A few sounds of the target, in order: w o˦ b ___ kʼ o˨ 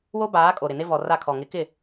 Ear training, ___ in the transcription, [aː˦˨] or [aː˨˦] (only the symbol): aː˨˦